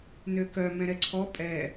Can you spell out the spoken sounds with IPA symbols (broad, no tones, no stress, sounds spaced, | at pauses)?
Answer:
n ø k œ m ɛ̃ ɾ ɛ ǀʰ ɔ pʼ ɛ